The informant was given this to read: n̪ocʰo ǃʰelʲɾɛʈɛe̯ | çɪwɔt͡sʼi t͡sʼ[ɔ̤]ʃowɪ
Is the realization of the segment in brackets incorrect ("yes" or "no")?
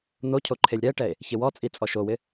yes